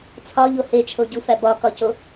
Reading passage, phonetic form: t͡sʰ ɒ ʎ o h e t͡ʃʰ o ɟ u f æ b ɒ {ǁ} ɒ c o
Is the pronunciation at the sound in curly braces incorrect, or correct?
incorrect